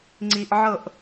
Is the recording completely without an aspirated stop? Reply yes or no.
yes